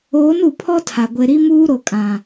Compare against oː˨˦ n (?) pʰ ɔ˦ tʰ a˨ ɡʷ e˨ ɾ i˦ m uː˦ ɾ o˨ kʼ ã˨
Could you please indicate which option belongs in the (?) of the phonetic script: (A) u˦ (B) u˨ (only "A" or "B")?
B